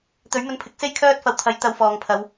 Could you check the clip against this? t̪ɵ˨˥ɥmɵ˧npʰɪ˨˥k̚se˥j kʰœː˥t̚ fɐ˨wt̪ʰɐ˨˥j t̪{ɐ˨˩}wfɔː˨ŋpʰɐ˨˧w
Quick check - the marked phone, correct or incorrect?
incorrect